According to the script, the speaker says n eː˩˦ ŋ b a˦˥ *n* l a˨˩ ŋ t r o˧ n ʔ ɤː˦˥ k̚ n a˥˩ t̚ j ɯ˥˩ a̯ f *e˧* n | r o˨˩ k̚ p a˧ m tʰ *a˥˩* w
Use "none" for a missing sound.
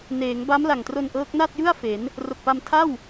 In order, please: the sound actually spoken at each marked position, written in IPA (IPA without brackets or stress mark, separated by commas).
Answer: m, e˩˦, a˥˩